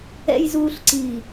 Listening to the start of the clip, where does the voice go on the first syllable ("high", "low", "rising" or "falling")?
low